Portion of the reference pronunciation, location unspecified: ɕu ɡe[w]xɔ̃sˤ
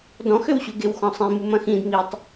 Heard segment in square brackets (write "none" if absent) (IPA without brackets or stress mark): w